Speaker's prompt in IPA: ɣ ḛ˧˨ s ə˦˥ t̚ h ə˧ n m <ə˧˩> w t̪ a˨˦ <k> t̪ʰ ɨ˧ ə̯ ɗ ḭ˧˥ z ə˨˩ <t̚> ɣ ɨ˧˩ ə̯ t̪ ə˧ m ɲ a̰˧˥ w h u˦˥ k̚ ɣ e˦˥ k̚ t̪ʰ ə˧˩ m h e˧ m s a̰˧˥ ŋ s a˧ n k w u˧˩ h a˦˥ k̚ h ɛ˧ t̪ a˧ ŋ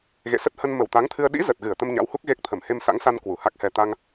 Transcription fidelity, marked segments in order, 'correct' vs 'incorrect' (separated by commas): correct, incorrect, correct